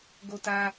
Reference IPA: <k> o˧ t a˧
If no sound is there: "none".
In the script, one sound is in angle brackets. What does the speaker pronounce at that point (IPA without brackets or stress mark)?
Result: ɡ